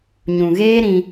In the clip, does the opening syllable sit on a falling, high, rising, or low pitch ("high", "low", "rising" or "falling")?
low